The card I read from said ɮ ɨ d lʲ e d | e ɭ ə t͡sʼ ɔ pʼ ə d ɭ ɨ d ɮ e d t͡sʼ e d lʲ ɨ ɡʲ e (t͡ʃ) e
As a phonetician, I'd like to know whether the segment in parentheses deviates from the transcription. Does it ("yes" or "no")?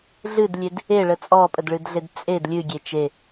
no